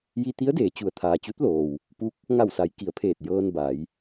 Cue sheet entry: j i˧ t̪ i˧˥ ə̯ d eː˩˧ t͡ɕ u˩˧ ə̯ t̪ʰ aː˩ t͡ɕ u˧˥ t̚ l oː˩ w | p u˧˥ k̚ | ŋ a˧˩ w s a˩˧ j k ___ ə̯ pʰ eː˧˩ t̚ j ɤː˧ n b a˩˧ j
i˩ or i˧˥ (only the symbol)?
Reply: i˩